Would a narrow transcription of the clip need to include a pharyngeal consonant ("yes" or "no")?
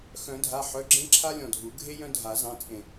yes